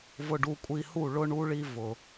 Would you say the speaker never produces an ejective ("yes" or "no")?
no